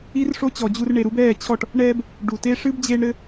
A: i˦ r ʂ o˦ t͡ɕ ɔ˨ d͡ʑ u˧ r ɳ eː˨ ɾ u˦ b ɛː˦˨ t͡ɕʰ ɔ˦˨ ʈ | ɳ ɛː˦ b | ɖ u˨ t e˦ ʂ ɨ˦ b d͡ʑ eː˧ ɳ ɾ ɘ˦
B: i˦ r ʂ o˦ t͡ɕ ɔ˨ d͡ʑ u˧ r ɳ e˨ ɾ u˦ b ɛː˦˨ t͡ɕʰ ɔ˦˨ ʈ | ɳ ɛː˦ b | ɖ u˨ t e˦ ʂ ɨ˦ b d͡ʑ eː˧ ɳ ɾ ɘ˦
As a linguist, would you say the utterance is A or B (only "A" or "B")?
B